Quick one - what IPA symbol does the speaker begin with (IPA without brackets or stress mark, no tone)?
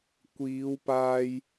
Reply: kʷ